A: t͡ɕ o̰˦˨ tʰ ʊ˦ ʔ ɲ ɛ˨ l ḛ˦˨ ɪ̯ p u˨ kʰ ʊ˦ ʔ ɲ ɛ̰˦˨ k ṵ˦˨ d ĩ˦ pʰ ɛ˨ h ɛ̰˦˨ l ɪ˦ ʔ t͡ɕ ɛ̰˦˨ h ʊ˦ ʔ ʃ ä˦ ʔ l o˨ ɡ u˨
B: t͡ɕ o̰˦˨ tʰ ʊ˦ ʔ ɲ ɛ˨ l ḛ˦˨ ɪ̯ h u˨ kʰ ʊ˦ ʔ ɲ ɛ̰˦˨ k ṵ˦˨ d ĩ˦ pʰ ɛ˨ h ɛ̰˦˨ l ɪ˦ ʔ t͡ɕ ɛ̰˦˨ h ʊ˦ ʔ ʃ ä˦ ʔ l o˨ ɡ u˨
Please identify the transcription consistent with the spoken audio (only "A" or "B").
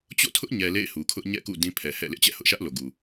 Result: B